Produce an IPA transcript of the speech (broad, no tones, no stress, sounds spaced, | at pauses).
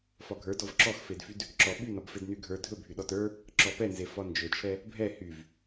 f ɒ ɡʱ ə˞ d ɔ v ǁ ɔ x f e d f y d | ǁ ɔ ɓ y n ɒ b f e d n y ɡʱ ə˞ dʱ ɵ bʱ y ɗ ɔ t ə˞ | ǁ ɔ p ɛ n z e f ɒ n d͡ʒ ɵ t͡ʃʰ ɛ | bʱ ɛ h y v